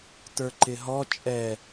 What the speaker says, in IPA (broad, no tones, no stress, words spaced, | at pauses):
tə˞ǃɪɦɔ t͡ʃʼɛ